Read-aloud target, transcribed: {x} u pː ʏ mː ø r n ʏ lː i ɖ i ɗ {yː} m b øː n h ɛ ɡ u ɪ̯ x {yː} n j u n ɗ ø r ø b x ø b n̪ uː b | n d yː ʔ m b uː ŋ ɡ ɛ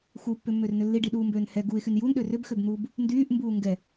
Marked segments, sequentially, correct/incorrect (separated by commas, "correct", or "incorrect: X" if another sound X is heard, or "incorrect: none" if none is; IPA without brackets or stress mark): correct, incorrect: uː, incorrect: y